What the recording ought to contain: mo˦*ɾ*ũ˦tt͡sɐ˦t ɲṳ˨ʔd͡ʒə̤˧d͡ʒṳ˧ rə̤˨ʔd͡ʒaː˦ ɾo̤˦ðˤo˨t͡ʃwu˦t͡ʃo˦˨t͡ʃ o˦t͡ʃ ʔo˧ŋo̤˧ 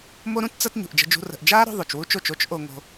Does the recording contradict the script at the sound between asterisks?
no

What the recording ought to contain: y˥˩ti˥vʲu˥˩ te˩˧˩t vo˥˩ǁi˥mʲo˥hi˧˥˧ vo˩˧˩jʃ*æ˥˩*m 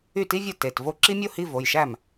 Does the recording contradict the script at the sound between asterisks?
no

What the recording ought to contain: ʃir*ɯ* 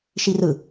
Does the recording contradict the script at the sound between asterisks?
no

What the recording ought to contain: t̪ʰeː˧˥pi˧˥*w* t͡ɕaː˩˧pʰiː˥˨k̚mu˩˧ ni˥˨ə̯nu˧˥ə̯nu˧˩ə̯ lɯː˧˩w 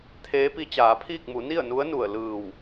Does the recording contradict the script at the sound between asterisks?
yes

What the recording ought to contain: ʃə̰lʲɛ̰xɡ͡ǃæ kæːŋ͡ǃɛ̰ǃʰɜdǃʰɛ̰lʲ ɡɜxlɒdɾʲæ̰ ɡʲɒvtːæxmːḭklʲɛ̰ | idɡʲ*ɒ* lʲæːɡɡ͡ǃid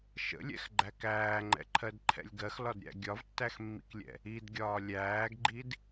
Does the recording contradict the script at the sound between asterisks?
yes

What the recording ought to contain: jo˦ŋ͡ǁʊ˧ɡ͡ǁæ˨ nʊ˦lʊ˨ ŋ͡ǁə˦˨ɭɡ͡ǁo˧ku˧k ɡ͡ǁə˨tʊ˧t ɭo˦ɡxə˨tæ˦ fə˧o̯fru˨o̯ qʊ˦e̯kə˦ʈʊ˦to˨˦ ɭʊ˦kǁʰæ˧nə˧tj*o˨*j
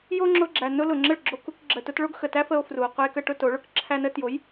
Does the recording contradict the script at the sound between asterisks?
yes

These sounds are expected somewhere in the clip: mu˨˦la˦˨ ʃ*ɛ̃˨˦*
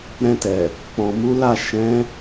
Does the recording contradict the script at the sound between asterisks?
no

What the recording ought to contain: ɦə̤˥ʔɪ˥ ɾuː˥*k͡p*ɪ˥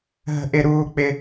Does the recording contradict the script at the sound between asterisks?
no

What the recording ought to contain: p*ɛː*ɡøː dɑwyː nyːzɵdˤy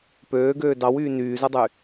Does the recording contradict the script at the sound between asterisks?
yes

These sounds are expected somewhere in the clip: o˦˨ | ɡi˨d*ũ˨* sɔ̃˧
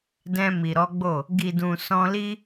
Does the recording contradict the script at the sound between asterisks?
no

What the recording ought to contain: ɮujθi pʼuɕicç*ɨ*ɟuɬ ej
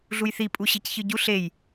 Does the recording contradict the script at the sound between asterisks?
no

